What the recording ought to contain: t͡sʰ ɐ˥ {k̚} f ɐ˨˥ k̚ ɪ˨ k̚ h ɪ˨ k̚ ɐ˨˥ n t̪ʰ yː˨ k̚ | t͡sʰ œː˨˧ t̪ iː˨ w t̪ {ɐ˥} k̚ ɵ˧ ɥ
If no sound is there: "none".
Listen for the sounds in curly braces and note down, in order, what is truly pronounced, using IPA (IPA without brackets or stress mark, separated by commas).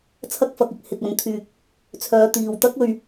k̚, ɐ˥